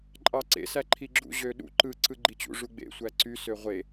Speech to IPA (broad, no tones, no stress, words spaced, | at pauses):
ǃʼɑǀḛ sæǃʰiɡ͡ǁṵ ʑøɗṵ ǃɯ ǀɯɡ͡ǃit͡ɕṵ ʐuɡ͡bḛ sʷæǀy søʁʷe